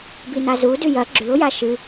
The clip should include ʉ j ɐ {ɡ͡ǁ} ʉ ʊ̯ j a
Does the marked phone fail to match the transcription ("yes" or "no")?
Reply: no